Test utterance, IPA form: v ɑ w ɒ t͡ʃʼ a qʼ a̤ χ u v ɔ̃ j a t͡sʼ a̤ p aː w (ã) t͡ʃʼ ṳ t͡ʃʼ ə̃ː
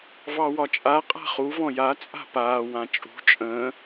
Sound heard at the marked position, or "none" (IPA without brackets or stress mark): ã